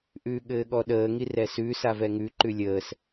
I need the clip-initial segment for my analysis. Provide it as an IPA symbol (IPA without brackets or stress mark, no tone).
ʔ